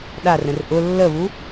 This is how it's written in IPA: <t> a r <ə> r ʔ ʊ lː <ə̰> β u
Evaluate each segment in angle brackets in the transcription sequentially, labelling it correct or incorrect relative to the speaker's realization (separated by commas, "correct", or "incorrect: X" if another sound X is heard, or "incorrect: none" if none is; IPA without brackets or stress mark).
incorrect: ɗ, incorrect: ə̃, incorrect: ə